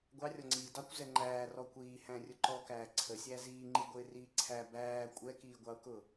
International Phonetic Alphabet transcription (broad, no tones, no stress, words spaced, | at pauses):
ɡʷɑrʲɔŋ͡ǀiː dɑkʷ zɛŋ͡ǃæː rɔkʷiː hæ̃rʲʊǃɔkæː ǀʰəsʲæ ziːŋ͡ǃiɡʷɪː riːǀʰæ bæː kʷʼɛkiːɡʷɑʊ̯kʊ